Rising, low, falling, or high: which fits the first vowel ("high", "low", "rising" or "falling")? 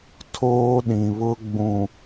high